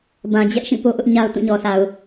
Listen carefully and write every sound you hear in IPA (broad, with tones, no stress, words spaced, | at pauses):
bã˨ d͡ʑɛ˦ʔʃĩ˦˨ po˦ʔʊ˦ʔɲa˦ʊ̯ tũ˦˨ɲɔ˨sa˨ʊ̯